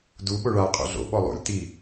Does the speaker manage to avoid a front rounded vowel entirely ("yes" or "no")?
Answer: yes